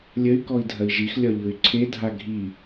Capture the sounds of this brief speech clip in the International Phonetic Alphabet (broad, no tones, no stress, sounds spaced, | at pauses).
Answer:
lʲ ə y̯ k ɔ i̯ dʱ ɐ i̯ ʒ i x lʲ ɒ ʎ ɯ y̯ ǀʰ e dʱ a ɡʱ i